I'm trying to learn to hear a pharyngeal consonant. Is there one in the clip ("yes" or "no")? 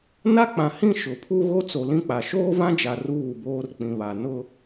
no